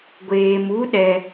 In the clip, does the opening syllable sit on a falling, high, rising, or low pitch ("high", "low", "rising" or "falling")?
low